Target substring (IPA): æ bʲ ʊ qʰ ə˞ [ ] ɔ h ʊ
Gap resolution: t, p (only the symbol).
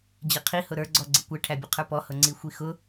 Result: p